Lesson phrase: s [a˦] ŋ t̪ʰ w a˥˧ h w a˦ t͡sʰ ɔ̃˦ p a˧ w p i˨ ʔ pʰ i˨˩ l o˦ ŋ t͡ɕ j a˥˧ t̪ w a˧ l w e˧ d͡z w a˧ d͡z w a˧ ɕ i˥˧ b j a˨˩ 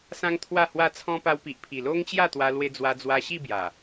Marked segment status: incorrect: ã˦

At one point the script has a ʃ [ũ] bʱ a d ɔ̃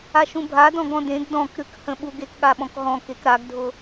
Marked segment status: correct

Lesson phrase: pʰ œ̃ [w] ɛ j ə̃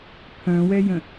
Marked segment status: correct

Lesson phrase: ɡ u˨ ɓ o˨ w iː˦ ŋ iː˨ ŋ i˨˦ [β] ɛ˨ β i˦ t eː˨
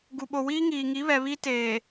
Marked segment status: correct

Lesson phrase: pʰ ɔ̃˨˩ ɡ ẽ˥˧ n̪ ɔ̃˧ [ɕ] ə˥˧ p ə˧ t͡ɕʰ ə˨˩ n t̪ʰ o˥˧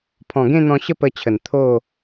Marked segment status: correct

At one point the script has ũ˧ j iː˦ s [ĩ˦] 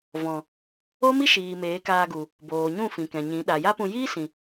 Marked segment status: incorrect: ĩ˨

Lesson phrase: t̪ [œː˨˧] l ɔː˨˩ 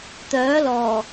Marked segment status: incorrect: œː˨˥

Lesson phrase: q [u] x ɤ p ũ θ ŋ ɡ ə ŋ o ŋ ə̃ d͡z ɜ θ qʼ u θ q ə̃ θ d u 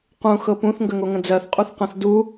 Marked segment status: incorrect: ũ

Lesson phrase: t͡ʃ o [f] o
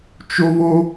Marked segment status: incorrect: β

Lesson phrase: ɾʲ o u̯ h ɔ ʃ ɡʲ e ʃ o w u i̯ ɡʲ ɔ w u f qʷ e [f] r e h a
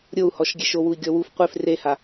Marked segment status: correct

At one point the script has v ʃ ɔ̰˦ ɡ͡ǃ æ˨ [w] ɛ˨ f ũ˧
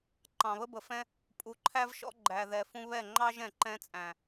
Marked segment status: incorrect: ð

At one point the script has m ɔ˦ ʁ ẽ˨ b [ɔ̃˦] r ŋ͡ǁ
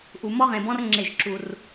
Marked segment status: correct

